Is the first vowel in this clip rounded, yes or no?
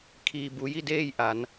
no